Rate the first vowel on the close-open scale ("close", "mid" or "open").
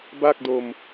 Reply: open